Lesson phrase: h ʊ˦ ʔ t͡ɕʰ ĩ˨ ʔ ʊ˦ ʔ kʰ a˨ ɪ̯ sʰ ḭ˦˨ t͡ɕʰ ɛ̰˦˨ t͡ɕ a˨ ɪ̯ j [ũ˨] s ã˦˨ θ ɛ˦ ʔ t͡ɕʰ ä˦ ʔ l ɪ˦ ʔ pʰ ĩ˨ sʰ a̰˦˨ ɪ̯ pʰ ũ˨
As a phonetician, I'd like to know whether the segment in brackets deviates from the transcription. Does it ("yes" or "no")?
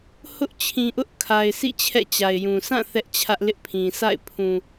no